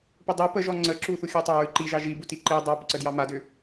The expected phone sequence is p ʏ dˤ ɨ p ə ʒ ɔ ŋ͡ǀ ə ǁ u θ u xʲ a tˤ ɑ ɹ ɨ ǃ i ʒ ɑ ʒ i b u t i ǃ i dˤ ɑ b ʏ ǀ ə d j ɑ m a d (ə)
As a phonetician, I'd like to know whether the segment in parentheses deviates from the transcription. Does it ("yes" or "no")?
yes